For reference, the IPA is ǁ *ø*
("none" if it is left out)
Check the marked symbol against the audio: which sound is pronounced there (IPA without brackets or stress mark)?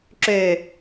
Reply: ø